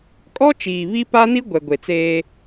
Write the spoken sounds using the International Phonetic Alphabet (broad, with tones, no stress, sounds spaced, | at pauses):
kʼ ɔ˦ t͡ʃ iː˨ β i˦ p a˦ n i˦ ɡʷ ɛ˨ ɡʷ e˨ t͡s eː˦